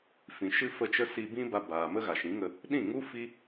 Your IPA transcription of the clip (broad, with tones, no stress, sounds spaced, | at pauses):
f ĩ˨ ʃ ɨ˦ f ə˦˨ t͡ʃ ə˦ s i˧ b ĩ˦ b a˧ b aː˨ m ə˦ ɣ a˨ ʃ ĩ˨˦ ŋ ə˧ | ɗ ĩ˦˨ ŋ u˦ f i˦